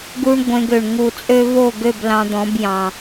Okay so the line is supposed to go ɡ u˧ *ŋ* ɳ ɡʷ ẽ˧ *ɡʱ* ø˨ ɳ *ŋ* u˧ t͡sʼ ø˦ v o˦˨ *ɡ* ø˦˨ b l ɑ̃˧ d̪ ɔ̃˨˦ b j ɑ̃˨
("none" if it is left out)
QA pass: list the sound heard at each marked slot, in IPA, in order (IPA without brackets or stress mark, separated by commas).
none, ɡ, ŋ, ɡ